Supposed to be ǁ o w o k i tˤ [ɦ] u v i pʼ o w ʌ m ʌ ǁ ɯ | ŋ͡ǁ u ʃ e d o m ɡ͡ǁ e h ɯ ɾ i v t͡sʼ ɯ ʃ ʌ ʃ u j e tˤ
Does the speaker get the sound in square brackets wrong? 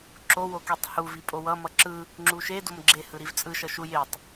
yes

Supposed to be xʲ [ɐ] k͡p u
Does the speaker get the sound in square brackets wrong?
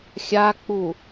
yes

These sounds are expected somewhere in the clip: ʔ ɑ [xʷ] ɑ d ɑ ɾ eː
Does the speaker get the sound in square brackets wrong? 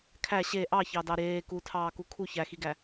yes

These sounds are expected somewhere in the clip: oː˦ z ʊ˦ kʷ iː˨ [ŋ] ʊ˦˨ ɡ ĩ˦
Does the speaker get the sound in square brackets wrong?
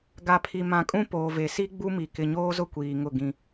no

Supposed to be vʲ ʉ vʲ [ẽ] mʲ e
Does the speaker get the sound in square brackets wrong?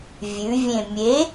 no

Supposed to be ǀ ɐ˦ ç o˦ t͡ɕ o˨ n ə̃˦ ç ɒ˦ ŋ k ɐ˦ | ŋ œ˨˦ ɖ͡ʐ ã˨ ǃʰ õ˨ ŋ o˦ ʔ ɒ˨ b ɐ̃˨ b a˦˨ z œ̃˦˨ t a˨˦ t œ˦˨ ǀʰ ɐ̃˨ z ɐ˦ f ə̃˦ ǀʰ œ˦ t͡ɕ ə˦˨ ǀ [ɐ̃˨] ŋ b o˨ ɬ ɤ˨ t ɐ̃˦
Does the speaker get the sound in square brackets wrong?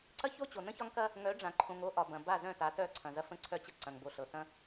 no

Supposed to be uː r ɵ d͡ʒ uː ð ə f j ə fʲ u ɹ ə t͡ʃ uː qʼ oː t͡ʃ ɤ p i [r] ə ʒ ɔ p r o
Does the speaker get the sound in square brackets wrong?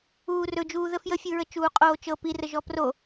no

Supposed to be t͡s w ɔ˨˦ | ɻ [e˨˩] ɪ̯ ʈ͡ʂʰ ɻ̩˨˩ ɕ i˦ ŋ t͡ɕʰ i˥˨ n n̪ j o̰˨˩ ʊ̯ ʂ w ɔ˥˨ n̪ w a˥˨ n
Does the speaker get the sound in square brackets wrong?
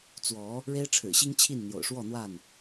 yes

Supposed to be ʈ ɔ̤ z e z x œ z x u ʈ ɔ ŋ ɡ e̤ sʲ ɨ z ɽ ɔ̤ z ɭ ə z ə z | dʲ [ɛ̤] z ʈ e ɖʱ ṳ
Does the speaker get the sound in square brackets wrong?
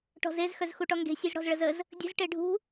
yes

